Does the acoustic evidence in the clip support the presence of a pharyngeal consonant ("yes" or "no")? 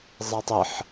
yes